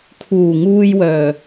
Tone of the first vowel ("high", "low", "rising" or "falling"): low